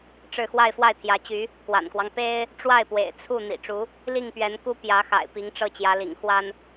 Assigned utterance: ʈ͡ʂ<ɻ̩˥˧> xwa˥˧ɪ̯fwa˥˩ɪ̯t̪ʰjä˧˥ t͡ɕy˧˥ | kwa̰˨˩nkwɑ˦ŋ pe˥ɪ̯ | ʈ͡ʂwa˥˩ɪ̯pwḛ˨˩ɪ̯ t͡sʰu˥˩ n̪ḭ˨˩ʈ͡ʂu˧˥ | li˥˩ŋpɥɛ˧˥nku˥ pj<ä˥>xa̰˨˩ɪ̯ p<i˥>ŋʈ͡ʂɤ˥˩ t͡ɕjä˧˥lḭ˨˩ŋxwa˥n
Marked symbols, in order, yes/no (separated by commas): yes, no, no